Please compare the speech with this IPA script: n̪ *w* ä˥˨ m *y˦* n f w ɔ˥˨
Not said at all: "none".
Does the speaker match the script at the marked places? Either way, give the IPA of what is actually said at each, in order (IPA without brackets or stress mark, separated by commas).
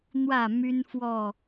w, y˦